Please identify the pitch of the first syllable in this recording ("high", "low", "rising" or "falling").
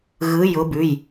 rising